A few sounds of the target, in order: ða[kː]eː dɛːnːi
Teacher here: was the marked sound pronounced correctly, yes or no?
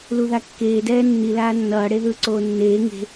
yes